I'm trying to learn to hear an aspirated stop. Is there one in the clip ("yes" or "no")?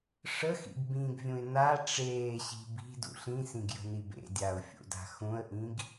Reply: no